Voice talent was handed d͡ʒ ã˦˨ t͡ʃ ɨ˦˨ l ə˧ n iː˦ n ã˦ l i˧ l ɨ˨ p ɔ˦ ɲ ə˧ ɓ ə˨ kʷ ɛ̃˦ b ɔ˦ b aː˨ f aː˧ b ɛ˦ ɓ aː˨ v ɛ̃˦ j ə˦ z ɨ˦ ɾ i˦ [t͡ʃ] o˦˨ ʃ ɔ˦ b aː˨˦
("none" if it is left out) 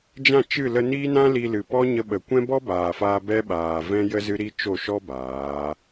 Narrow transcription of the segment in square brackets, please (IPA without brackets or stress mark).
t͡ʃ